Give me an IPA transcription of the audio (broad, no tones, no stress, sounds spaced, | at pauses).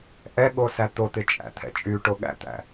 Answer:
ʔ ɛ ɠ o s æ t̪ o t̪ ɪ t͡ʃʼ æ̰ t̪ʰ ɛ̰ t͡ʃʼ y ʈ o ɠ æ̰ t̪ æ̰